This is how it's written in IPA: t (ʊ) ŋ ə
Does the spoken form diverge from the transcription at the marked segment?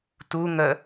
yes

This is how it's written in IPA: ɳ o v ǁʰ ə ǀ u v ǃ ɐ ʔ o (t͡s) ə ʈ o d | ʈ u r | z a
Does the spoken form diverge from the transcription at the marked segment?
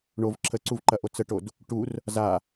no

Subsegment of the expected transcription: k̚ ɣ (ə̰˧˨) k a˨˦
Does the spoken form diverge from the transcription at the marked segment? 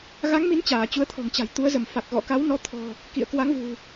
yes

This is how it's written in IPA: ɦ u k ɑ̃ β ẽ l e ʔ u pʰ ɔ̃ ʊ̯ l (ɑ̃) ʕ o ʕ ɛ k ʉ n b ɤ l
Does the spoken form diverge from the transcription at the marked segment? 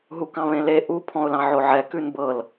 no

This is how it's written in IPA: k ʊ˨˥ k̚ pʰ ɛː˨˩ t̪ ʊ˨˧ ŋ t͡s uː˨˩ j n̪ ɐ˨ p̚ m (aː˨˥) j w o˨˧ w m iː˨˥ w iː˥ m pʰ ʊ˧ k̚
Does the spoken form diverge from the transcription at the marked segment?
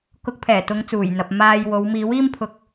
yes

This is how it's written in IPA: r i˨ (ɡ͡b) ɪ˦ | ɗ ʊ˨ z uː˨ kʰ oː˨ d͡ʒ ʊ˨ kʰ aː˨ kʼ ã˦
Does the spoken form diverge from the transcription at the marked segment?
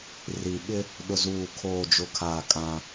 yes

